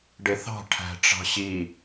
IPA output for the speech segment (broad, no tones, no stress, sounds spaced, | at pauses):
ɖ e θ ɑ̤ ʈʰ æ̤ ʈ͡ʂ ɑ̤ ɕ i